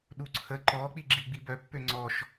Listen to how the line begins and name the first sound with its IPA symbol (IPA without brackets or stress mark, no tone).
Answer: ɗ